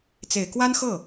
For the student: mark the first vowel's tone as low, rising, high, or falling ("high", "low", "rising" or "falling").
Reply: low